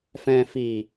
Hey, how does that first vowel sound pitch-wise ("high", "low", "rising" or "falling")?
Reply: low